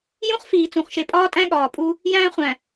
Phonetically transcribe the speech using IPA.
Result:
jũ˦χfiː˨ t͡sũ˨χʃe˨pʼɒː˦tʼæ̃˦ ɠɒː˨pʼu˦ | jæ̃ː˦χʷæ̃˨

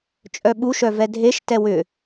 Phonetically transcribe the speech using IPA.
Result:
t͡ʃʼœɓuʃœvɛ dʱeʃ tɛwʏ

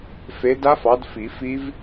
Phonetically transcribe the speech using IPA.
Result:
fe˨˦ da˦˥fɑ˨˦d fi˨˩˦fi˦˥v

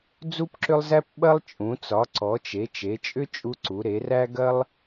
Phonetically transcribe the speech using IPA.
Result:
d͡zu˦pǁʏ˦lˠzæ˦p ɓɐ˦lˠt͡ʃʼũ˩˧ t͡sɒ˩˧ǀɔ˩˧t͡ʃe˩˧ t͡ʃe˩˧t͡ʃʼʏ˦ t͡ʃʼu˦ǀu˩˧ ɾe˩˧ræ˦ ɡɐ˦lˠ

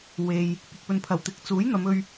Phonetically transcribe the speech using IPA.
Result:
we˨j | pɪ˨k̚ pɵ˨npʰɐ˨˩wt̪ɪ˨˥k̚ t͡suː˨˥jn̪ɐ˨˧mɵ˧ɥ

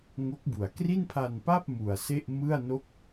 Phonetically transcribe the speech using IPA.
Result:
ŋo˦˥k̚bu˨˩a̯ kri˥˩npʰa˧npa˥˩p̚ mu˨˩a̯se˥˩ʔ mɯ˥˩a̯no˥˩k̚

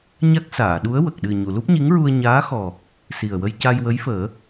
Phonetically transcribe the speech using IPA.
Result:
ɲa˦˥k̚saː˨˩˨ɗu˧˥ə̯ wə˨˩k̚ɗɨ˨˩ ɲu˨˩˨lu˦˥p̚ɲi˧˥ŋɹu˧ə̯ ɲaː˧˥xɔ˨˩ | si˨˩ə̯wə˧j ca˧jwə˧˥jfəː˨˩˦

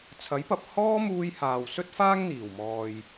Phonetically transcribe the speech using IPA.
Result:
t͡sʰɐ˨˥jpɐ˨p̚ hɔː˥muː˧jhaː˨w sɵ˥t̚faː˥ŋn̪iː˨˩wmɔː˨j

